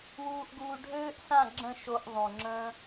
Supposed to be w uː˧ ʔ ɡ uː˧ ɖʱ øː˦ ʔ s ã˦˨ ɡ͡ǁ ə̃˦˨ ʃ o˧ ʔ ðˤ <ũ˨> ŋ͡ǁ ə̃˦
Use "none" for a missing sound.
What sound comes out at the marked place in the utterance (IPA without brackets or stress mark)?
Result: ũ˨